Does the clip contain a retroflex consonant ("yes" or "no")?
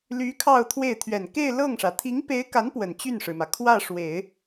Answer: yes